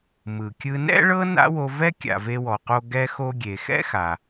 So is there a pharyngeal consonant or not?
no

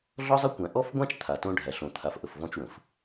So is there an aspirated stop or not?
yes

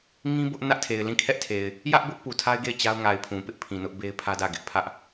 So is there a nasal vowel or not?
yes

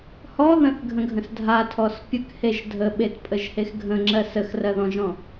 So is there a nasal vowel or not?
yes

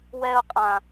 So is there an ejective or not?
yes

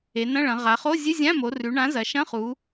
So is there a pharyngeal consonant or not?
no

